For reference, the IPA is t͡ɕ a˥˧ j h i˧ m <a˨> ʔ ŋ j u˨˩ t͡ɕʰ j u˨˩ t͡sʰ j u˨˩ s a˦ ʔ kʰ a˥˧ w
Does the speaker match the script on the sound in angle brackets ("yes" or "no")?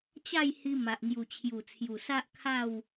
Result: yes